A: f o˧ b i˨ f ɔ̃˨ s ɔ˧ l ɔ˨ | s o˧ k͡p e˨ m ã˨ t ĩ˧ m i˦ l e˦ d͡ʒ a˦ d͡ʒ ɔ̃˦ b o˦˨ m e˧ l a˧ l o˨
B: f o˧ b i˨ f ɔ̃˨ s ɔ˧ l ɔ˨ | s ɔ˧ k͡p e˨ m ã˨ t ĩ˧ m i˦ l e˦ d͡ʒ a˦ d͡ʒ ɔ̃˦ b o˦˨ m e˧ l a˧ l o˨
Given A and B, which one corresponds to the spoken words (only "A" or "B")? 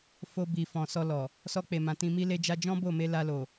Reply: B